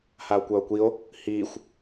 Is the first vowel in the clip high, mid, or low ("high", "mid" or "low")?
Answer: low